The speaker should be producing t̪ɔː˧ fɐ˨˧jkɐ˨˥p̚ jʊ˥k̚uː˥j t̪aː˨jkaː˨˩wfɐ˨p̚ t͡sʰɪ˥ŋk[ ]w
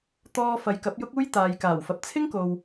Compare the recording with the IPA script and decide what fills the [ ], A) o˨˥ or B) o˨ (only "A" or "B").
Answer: B